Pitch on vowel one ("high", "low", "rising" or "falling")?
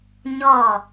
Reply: falling